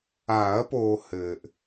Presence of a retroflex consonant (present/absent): absent